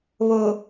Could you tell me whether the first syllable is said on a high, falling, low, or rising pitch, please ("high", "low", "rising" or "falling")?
low